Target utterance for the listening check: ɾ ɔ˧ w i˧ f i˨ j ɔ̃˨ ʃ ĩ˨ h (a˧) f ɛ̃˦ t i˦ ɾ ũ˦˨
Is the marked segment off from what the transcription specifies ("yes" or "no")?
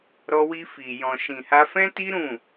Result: no